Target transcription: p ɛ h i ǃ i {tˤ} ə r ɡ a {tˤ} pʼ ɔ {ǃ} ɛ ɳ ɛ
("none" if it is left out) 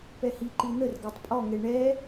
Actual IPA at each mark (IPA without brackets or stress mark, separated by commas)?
n̪, tˤ, ŋ